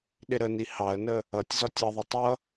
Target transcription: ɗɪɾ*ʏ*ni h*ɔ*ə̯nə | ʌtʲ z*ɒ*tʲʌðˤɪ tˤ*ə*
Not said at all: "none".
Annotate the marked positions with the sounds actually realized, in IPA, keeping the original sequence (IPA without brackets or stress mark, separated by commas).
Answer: ə, ɑ, ɒ, ʌ